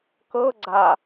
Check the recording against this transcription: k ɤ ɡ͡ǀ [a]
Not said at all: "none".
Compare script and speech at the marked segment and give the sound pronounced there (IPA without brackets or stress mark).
a